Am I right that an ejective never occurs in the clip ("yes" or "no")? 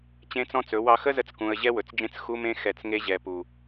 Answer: yes